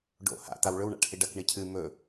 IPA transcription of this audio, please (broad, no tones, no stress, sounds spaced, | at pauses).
ɖ o̰ h a̰ t̪ a w ɭ ɵ w ɳ a̰ ʈ h i ɖ ɐ k ɳ i cʰ ɨ m ɵ